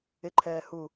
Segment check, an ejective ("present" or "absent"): absent